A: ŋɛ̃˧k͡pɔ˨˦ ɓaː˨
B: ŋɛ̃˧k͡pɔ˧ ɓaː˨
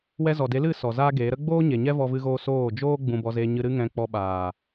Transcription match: B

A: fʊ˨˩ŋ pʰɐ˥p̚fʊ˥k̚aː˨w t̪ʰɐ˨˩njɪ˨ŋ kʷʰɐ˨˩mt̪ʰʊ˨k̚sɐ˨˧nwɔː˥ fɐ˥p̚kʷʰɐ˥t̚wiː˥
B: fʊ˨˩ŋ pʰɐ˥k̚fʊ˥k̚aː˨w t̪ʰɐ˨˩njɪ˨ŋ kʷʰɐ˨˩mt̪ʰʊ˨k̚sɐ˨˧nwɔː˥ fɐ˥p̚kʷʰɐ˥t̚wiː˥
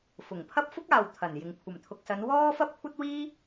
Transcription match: A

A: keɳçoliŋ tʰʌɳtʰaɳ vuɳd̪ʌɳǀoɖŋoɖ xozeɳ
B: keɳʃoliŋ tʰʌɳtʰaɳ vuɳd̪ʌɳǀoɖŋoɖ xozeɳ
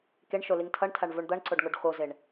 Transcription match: B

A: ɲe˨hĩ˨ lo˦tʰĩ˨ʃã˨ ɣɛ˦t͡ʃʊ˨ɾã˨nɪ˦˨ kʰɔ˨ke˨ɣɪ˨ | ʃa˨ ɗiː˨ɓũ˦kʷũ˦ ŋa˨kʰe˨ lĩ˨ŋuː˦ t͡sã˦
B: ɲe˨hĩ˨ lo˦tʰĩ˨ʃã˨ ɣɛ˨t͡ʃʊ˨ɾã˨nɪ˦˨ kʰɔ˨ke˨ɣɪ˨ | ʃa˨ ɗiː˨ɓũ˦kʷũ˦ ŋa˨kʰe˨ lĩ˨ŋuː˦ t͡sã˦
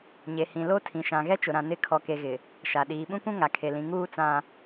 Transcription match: A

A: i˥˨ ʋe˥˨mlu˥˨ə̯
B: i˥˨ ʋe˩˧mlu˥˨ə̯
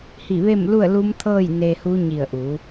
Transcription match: A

